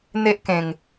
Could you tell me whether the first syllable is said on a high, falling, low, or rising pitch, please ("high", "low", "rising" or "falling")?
high